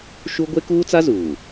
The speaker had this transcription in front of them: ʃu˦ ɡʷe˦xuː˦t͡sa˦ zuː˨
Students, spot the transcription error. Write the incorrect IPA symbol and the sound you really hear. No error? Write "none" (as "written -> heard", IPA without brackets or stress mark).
x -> k